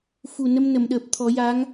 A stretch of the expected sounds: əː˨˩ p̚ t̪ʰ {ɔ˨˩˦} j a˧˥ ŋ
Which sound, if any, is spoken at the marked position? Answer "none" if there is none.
ɔ˨˩˦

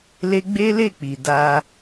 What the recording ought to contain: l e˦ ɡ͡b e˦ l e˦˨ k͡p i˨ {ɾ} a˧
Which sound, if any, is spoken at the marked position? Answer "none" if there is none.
d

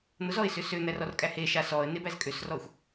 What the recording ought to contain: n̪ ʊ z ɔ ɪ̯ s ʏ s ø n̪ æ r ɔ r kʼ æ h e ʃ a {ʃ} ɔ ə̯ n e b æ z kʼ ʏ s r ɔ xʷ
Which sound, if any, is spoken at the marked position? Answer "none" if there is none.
s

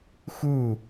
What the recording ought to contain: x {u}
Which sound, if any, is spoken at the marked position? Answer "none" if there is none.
u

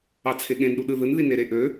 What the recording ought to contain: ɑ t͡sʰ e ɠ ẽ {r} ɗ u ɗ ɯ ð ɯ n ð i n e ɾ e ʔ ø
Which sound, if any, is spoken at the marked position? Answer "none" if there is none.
n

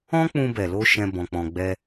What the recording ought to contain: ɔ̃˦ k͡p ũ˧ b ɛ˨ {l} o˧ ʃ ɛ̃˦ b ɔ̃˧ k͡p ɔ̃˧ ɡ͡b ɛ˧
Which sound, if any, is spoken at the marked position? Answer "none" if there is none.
l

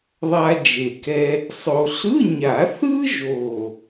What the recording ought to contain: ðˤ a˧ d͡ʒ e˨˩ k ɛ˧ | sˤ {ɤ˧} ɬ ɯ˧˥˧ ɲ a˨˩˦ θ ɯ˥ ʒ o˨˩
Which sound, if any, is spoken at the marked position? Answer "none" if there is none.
o˧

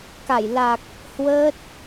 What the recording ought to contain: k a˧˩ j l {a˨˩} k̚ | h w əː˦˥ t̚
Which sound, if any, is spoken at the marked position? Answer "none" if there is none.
a˨˩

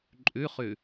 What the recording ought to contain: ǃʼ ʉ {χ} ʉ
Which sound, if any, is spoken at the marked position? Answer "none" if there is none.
χ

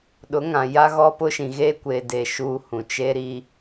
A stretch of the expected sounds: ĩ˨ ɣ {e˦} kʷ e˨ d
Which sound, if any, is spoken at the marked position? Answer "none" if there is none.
e˦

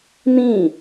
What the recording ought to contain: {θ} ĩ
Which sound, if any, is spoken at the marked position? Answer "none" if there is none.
n̪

